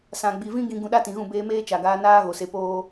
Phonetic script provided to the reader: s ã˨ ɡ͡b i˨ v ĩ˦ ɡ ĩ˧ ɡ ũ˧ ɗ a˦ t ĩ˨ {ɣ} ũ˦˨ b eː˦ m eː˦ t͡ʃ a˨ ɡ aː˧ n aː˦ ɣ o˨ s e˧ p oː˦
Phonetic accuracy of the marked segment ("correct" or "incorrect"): correct